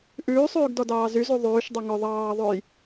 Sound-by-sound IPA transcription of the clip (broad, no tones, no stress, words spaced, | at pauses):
ʔʉːsˤʉːɡ dɔdɑːzyzu ðˤʉːʃdˤy ŋɵ ðˤɑːðˤʉj